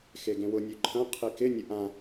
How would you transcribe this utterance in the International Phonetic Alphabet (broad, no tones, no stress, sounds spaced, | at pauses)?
x e ɡ ẽ w ʊ nʲ ø ǃʰ ɐ̃ qʰ i k ɪ nʲ ə ʔ ã